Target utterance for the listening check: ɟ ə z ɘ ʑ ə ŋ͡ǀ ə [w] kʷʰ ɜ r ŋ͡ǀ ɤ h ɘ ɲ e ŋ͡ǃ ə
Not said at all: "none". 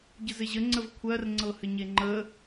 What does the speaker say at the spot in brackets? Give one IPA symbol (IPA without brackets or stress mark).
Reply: v